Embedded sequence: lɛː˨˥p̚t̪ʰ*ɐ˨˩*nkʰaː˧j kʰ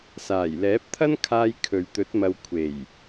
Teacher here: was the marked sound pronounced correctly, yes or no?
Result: no